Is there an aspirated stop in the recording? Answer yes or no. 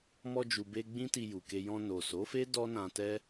no